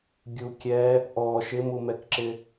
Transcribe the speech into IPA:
ɡʲukʲɛ | ʔɔ ʃɪmumɛkǁɪ

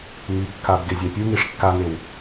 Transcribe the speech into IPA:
ŋikːab ɡezʲapʲuŋiʂ kːaŋew

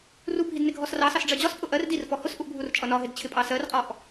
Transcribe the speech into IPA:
rubʱid nɪɡʱɔsrɑsɑs ɖ͡ʐɜd͡ʑɒspʼʊ ʔɜr dirfɔ hʊsʔuʔ bʱurt͡ʃʼʌnɒɦɪd t͡ɕʰɪpʼɑsɜrqʼɔʔ

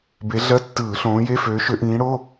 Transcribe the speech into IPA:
be˨˥ɮɜ˧˥˧tːɯː˧˩˧ ɬõː˨˥je˧˥˧føː˨˥ ʃø˨˥ʔĩː˨˥ɽo˧˥˧

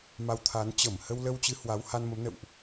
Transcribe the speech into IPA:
ma˧wt̪ʰa˨˦n t͡ɕə˧˩m hə˧wlə˧wt͡ɕɨ˨˦ hwa˨˦wha˧nmə˨˦mnə̰˧˨wʔ

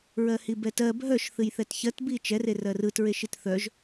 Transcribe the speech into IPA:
ɹɜhibɛtɜ bʱœʃ θɨjθɛtçɜtbi t͡ʃɛre rɜrɯtɹeʃit θœʒ

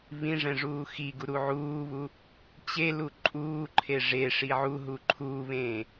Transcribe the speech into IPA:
βĩʐɛ̃ ʐuːxiɡu ɾuʕuːβu | t͡ɕelu ǃʼuːǃʰe ʐeʂi ʕuɦu ǃʰuːβẽː

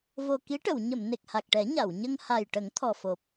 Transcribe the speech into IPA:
vo˨˩ki˧˥ʈə˨˩˨w ɲə˨˩˨m ne˨˩k̚ha˨˩k̚ʈɛ˨˩˦ ɲa˨˩˨wɲə˧ŋha˨˩j ʈə˨˩˦ŋ t̪ʰɔ˨˩fo˨˩p̚

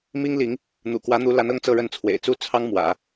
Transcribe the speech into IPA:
mi˥ŋ li˧˥ŋ | n̪ṵ˨˩kwä˧˥n̪u˧˥la˧˥n ɤ˥ŋt͡sɤ˥˧ɻə˥˩nt͡sʰwḛ˨˩ɪ̯ t͡su˥˩ t͡sʰɑ˥ŋmwä̰˨˩˦

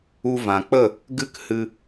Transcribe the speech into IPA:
u˧ vã˨k͡pə˦˨ | ɡɨ˦k hɨ˧

